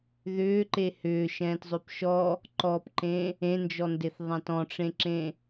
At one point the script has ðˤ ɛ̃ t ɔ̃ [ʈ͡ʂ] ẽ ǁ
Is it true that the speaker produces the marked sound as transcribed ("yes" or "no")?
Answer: yes